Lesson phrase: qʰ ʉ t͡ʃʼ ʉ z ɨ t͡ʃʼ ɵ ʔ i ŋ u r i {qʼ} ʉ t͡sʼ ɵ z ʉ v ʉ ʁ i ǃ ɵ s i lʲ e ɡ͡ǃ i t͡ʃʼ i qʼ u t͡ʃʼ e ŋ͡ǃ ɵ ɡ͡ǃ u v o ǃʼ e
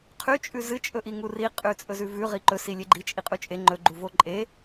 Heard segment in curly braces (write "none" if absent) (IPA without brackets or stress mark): qʼ